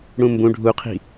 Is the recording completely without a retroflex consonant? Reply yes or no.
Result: no